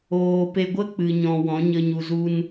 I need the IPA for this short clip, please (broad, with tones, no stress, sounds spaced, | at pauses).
oː˨ p e˧ ɡʷ ə˦ k͡p ɨ˨ ɲ ɔ̃˨ w ɔ̃˨˦ ɲ ə˧ ɲ u˧ z u˦ n